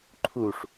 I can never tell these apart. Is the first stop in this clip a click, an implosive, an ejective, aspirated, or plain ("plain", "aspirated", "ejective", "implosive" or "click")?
click